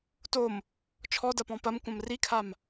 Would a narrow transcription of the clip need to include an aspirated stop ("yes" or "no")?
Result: yes